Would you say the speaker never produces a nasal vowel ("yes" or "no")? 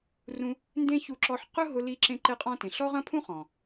no